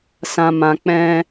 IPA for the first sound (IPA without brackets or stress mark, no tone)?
s